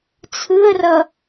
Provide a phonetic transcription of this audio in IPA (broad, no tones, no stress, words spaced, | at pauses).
t͡sʰɯə̯rʌ